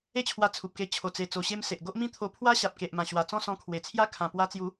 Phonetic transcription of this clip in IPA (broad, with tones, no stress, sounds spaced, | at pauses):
e˦ t͡ɕʰ w a˧ t͡sʰ u˨ p̚ k e˧ t͡ɕʰ o˨˩ t͡s e˨˩ t͡s o˨˩ ɕ e˧ m s e˨ ʔ ɡ o˦ ʔ m ĩ˥˧ t̪ʰ o˧ pʰ w a˦ ɕ a˨ p̚ k e˨ ʔ m ã˨˩ ɕ w a˨˩ t͡s ɔ̃˥˧ s ɔ̃˧ kʰ w e˨˩ t͡sʰ j a˦ kʰ ã˨˩ p w a˧ t͡s j u˨˦